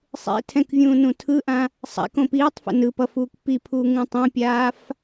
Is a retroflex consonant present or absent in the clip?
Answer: absent